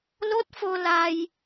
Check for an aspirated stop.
absent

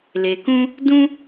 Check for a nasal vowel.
present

